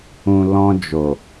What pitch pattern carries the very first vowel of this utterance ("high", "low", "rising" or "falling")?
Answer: low